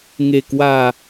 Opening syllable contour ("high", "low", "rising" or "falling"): low